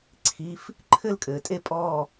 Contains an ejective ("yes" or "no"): yes